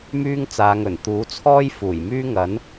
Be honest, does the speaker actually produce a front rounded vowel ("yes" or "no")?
yes